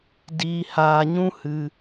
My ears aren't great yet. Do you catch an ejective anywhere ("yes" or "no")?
no